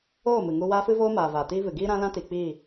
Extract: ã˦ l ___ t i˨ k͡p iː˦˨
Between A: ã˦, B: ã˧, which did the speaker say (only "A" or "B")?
A